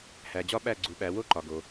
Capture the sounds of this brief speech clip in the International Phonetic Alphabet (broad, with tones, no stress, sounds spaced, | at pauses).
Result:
h æ˩ d͡ʑ ɒ˦˥ ɓ æ˦˨ ɡ͡ǀ u˩˧ ɓ æ˩˧ w o˦˥ ǃ ɒ˩ ɡ o˩